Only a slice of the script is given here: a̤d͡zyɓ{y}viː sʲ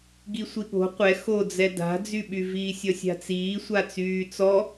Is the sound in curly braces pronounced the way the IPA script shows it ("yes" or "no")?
yes